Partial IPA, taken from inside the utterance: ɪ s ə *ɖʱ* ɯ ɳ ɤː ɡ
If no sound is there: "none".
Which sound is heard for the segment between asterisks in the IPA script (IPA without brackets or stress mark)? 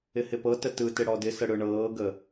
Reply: ɽ